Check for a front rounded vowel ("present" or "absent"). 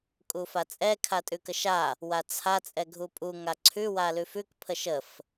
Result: absent